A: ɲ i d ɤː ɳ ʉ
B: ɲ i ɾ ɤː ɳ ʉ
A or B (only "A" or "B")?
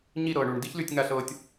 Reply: B